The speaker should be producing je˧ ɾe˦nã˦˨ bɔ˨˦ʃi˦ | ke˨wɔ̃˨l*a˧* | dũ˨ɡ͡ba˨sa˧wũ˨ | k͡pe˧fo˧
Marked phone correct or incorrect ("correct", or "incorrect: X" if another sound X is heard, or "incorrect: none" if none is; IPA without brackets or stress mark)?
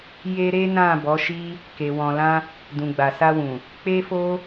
incorrect: ã˧